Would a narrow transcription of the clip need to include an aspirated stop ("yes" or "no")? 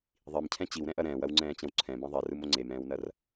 yes